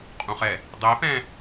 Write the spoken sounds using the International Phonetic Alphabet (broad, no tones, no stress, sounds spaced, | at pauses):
qʼ ũ χ ɛ | dˤ e p ɛ̃